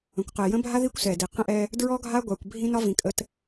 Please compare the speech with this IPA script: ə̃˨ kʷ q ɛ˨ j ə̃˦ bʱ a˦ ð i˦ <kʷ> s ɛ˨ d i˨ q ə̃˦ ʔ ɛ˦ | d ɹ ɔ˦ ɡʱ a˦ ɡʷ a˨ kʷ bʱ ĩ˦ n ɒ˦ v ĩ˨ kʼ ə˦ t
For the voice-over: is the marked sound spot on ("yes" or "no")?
yes